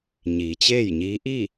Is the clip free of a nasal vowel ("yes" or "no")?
yes